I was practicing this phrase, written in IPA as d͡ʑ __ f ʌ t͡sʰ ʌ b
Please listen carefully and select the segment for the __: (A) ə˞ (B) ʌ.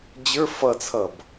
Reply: A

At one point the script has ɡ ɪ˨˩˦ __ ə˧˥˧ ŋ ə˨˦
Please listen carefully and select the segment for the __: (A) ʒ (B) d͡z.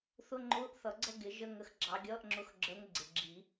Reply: A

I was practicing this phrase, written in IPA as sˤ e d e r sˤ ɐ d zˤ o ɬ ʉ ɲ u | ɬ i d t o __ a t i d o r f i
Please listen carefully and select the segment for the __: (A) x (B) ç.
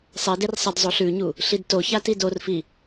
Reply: B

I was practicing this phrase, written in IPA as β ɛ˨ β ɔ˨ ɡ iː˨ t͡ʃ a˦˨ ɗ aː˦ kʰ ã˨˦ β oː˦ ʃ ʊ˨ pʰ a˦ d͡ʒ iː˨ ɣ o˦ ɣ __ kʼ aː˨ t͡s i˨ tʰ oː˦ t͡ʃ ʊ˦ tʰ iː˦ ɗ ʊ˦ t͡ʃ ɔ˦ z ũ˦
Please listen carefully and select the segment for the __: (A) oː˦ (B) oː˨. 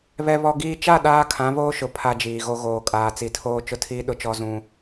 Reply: B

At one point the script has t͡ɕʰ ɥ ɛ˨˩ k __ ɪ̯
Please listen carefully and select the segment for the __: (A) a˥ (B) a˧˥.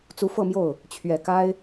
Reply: A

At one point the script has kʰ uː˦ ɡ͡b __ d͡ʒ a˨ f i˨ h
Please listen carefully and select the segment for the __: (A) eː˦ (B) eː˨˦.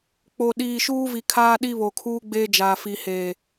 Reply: A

